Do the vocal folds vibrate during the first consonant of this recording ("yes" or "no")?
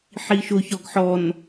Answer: no